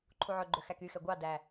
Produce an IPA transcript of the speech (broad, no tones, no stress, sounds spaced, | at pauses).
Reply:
ǃʰ u ʕ ɵ ɡ͡ǃ ø x æ k y x ɛ ɡʷ ɑ d æ